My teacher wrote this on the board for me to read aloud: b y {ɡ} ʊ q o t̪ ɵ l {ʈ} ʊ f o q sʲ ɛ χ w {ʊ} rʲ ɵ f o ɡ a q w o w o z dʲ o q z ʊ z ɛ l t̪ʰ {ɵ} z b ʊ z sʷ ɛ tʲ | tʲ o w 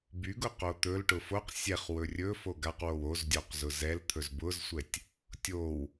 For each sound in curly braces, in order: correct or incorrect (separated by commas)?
correct, correct, incorrect, correct